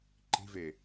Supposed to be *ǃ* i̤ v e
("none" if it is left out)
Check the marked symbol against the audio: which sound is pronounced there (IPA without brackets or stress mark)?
ǃ